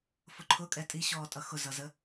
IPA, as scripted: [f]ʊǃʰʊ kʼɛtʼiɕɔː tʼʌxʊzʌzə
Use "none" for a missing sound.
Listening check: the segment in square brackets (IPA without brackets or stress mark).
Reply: f